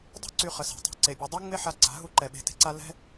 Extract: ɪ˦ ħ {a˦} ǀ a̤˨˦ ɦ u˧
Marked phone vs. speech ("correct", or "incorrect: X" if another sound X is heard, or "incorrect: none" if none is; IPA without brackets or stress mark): incorrect: a˧